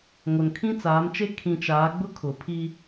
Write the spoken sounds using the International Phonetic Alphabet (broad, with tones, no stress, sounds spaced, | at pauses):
ŋ o˨ n kʰ ĩ˦ t͡s aː˨˦ m t͡ʃ e˦ kʰ ĩ˨ t͡ʃ aː˨˦ ɡ͡b ʊ˦ kʰ ʊ˨ pʰ i˦